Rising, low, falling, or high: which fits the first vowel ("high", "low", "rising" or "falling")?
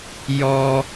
high